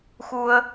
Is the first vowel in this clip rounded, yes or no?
yes